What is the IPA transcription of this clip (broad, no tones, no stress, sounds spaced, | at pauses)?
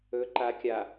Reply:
ɵ ǃ a kʲ a